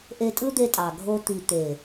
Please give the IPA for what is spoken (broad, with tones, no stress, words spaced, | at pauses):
ʔe˧tʼɯ˦d̪e˧tʼɑ˨ ɡʱo˧t̪i˨ t̪e˨